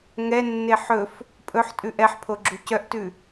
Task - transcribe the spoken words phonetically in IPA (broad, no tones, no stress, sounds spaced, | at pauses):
ŋ ɛ nː e ħ ɵ f | pʼ ɵ ħ tʼ ʉ ʔ ɛ ħ pʰ o ɡ͡ǁ u c œ ʔ t ʉ